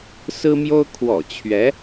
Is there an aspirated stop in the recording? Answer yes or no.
yes